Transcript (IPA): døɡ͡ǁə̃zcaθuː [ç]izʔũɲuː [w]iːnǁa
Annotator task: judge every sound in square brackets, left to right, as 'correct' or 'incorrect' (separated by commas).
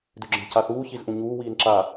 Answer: correct, correct